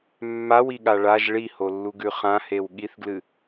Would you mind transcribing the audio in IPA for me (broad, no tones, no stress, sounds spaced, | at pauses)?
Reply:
mː a w i ɠ a ɭ a ʒ ɭ i h o lː u ɡ ʉ χ ã h e w ɠ i θ ɡ l ɨ